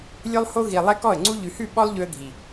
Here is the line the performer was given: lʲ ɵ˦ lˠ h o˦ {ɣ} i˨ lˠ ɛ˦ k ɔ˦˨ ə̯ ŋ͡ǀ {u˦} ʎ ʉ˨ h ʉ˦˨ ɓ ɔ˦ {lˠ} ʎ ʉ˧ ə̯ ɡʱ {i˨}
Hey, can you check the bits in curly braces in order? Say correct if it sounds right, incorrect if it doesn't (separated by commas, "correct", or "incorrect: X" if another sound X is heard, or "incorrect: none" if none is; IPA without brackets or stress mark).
correct, correct, correct, correct